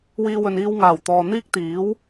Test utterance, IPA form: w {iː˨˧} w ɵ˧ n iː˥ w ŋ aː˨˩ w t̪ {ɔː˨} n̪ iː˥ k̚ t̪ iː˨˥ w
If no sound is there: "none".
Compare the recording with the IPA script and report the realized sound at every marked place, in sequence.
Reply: iː˥, ɔː˨

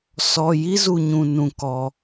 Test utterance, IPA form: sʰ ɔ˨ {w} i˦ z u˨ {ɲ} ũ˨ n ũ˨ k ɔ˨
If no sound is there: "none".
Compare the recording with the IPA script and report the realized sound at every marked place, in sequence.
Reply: j, ɲ

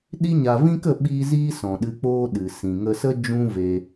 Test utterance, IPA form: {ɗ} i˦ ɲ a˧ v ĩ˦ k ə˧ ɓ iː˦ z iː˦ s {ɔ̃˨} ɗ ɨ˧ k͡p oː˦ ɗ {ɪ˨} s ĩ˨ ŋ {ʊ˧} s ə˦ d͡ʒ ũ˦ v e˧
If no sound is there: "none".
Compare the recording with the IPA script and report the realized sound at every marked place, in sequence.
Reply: ɗ, ɔ̃˨, ɨ˨, ə˧

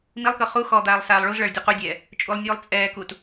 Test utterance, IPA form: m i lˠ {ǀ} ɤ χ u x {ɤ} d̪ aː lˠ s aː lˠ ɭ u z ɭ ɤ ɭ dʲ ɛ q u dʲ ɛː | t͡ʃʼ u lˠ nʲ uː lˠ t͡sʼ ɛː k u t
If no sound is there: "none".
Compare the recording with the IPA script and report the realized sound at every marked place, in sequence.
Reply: k, ɔ

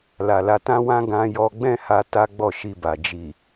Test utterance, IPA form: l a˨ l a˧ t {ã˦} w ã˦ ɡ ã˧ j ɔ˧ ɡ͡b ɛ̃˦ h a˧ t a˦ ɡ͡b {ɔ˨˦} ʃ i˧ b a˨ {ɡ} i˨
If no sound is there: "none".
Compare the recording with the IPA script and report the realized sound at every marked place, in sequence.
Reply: ã˦, ɔ˦˨, d͡ʒ

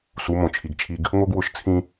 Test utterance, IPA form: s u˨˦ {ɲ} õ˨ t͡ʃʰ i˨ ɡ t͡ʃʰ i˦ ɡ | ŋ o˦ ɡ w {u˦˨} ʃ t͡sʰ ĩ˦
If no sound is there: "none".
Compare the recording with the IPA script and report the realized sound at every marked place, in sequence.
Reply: m, ʊ˦˨

